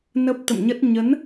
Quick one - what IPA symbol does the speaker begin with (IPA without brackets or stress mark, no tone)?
n